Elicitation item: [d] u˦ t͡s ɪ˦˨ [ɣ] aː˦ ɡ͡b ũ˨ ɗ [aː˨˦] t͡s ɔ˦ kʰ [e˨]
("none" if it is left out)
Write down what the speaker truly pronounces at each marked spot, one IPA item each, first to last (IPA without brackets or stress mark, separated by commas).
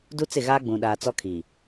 d, ɣ, aː˨, i˨